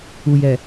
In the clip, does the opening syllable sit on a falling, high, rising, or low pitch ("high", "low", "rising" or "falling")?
low